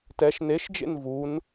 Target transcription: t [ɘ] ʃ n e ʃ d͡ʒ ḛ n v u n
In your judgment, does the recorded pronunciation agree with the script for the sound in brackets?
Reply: no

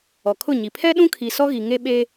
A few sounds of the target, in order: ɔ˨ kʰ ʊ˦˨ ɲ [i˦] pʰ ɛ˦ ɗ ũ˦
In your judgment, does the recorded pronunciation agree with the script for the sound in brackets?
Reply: no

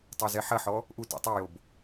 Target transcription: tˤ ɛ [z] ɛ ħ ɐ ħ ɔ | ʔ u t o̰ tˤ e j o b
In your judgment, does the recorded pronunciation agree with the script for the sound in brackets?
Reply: yes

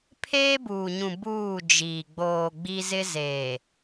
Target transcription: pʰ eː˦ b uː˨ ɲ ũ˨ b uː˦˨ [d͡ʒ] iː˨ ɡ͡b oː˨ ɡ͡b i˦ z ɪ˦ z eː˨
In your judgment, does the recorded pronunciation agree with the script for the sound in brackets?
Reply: yes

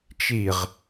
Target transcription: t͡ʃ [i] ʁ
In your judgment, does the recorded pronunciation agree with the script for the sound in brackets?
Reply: yes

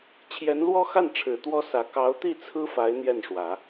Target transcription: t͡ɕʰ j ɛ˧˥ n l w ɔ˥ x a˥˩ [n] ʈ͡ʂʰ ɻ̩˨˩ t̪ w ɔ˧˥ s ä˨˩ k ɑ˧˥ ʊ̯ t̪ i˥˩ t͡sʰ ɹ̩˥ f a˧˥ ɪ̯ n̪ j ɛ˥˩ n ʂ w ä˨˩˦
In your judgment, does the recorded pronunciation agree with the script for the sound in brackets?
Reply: yes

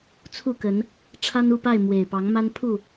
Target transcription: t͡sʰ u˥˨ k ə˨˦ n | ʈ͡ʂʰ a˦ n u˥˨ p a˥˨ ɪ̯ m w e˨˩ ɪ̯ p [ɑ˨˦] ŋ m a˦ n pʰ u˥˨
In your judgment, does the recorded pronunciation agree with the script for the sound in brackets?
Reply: yes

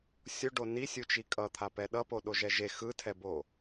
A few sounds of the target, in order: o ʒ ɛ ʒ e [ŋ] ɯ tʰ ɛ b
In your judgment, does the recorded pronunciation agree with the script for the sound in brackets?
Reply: no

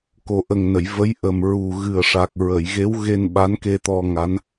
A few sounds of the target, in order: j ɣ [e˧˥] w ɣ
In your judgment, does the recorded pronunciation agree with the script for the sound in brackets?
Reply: yes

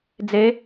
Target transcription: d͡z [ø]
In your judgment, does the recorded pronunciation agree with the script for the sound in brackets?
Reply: no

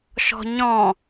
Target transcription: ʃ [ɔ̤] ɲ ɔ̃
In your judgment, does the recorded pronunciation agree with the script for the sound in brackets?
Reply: yes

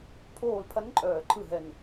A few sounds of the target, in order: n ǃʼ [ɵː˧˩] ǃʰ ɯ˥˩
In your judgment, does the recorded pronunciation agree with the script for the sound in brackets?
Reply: no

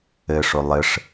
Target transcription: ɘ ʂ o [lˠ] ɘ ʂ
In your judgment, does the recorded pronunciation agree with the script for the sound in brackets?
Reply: yes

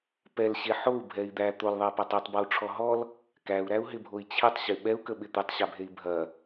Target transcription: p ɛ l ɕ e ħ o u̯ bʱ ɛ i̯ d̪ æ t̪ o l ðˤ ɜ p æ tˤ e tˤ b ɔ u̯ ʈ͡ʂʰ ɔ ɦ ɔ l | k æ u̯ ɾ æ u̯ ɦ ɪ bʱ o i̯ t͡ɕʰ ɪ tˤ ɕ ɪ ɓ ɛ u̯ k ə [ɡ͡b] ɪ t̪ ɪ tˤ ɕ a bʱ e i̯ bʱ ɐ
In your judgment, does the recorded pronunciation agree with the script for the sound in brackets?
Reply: no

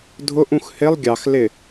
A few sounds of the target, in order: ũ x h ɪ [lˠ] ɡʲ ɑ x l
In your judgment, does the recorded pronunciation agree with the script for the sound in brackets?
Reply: yes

